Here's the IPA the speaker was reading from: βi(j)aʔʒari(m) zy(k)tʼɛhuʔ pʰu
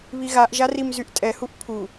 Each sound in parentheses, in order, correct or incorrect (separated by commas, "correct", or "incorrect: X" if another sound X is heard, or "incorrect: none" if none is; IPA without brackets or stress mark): incorrect: ɣ, correct, incorrect: ʔ